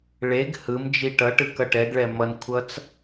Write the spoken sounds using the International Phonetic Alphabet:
ɭ e ɡ h ɯ m d͡ʒ i ʈ ʌ ʈ ɯ k ʌ ʈ ɛ ɡ ɭ ɛ m ʌ n kʷʰ ʌ t͡s

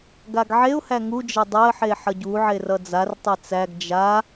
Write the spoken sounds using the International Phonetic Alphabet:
ɡ a ɡ ʕ e ʊ̯ h æ ŋ u d͡ʒ ʌ dˤ æ ə̯ ħ e ħ ʌ ɟ u ʕ e r ʌ d͡z a r tˤ e t͡s æ ɡ d͡ʒ a

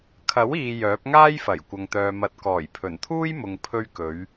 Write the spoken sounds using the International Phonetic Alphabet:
kʰ ɐ˨˥ w iː˨ j œː˨˥ p̚ ŋ aː˥ j f ɐ˨˩ j kʷ ɐ˨ ŋ t̪ œː˨ m ɐ˨˥ t̚ k ɔː˨˩ j pʰ ɵ˨˩ n t̪ʰ uː˥ j m ʊ˨ ŋ pʰ ɵ˧ ɥ k ɵ˨˧ ɥ

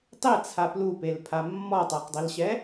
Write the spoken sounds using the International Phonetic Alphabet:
tˤ e t͡sʰ a p l u p e l pʰ a mː ɔ tˤ a q dˤ i l ɕ ɛ

